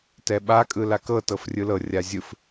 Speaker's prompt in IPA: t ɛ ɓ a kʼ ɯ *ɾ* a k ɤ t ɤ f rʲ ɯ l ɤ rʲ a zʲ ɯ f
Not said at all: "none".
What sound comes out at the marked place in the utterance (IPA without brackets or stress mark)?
l